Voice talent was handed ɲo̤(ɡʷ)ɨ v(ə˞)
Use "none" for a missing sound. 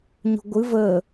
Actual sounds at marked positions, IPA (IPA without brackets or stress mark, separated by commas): ɡʷ, ə